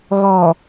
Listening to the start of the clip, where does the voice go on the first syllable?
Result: low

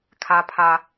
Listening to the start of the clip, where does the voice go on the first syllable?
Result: low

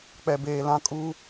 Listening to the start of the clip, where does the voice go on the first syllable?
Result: low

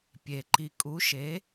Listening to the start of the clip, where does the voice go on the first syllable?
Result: low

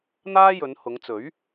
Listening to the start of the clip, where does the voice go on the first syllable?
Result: high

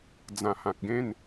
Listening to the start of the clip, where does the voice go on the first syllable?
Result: low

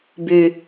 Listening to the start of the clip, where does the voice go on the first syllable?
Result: low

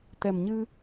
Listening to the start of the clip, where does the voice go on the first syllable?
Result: low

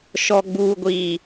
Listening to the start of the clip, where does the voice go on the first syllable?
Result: low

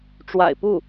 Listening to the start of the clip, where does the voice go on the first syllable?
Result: low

